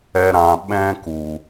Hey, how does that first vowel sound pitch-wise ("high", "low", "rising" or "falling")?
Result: high